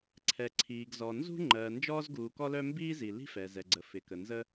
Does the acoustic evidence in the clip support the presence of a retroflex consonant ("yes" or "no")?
no